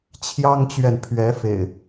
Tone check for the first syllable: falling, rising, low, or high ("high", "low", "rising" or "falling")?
high